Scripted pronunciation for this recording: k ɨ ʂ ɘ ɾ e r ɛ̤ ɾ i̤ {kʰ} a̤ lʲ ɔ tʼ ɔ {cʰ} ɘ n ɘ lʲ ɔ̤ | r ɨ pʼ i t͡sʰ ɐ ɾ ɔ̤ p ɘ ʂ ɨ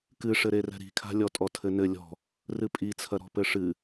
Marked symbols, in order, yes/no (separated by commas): yes, no